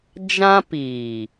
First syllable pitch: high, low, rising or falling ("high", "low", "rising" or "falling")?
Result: high